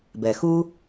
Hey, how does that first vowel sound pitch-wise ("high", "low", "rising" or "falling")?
low